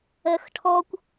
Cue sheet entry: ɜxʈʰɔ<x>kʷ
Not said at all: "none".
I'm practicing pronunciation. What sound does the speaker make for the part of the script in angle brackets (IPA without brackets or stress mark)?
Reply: none